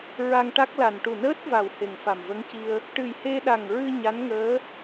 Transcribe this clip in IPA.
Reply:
ɹ a˧ ŋ ʈ a˦˥ k̚ l a˨˩ n ʈ u˨˩ n əː˦˥ t̚ v a˨˩ w h e˨˩ ŋ f a˨˩ m v ə˧˥ ŋ c i˧ ə̯ | ʈ ɨ˨˩ j h e˧ ɗ a˨˩ ŋ ɹ ɨ˧ ɲ a˧˥ n ŋ əː˧˥

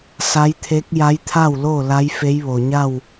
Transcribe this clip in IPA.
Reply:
s a˧˥ j t̪ʰ e˧˥ k̚ j a˧˥ j t̪ʰ a˥˨ w l o˥˨ l a˧˥ j f e˧˥ j ʋ o˩ ɲ a˥˨ w

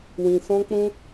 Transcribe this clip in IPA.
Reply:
w ĩ˨ s ɔ̃˦ k͡p ũ˦

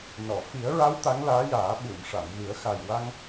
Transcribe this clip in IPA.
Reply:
n ɔ˨˩˨ f i˨˩˦ ə̯ ɹ a˧˥ w t̪ a˧˥ ŋ l aː˧˥ j aː˨˩˦ ɓ u˨˩˨ m ʂ a˨˩˨ m ɣ ɨ˨˩˦ ə̯ x a˨˩ j w a˧ ŋ

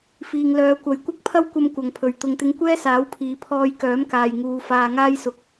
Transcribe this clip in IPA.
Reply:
f iː˨ ŋ l œː˨˧ kʷ ɐ˨ j kʷ ɐ˥ k̚ pʰ ɐ˥ w kʷ ɐ˥ m kʷ ɐ˨˧ ŋ pʰ ɵ˨˧ ɥ t̪ ʊ˧ ŋ t̪ ɪ˥ ŋ kʷ ɛː˥ s aː˨˥ w pʰ iː˨ pʰ ɔː˧ j k œː˨˥ m k aː˨ j ŋ uː˨˧ f aː˧ ŋ aː˥ j s ʊ˨˥ k̚

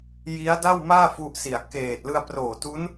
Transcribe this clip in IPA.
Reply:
j i˦˥ a̯ d a˥˩ w m aː˥˩ f u˦˥ ʔ s i˨˩ a̯ k eː˨˩ t̚ l ɯ˧ a̯ p r oː˨˩ t u˦˥ n

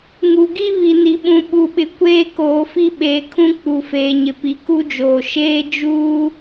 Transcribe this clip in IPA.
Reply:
ŋ u˨ ɡ i˦ β i˨ n i˨ ɓ ũ˨ ɓ u˨ ɓ ɪ˨ kʷ eː˦ k oː˨ f i˦ ɓ eː˨ kʰ ũ˦ k͡p u˨ f eː˨ ɲ ɪ˨ p i˨ k u˦ d͡ʒ oː˨ ʃ eː˦ d͡ʒ uː˦

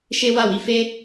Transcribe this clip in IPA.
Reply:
ʃ e˦ w a˦˨ w i˧ f e˦

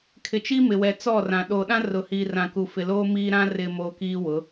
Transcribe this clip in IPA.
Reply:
kʰ ɪ˨ t͡ʃ i˦ m ɪ˨ w ɛ˨ t͡s ɔ˦˨ r ã˨ ɗ oː˨ ɗ ã˦ r ʊ˨ h iː˨ r ã˨ k u˨ f ɪ˨ l oː˦ m iː˦ ɾ ã˦ r ɪ˨ m oː˨ k iː˦ w ʊ˨˦

